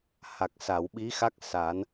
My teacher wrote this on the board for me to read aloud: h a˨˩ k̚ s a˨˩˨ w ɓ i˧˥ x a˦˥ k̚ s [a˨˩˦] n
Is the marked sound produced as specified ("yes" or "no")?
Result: yes